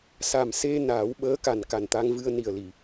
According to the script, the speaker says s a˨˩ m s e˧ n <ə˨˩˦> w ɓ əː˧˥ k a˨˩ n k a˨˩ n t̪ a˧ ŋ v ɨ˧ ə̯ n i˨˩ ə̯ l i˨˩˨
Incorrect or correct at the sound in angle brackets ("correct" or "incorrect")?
incorrect